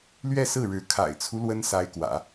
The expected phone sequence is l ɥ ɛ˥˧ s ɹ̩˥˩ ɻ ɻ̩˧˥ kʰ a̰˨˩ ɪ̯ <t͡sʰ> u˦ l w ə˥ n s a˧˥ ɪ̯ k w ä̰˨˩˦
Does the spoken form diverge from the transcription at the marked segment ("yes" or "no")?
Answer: no